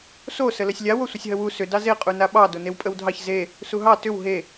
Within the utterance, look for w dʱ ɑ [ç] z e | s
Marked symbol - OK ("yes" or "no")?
yes